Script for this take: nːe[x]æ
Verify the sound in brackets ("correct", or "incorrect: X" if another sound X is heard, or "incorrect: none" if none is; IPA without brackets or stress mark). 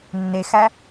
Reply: correct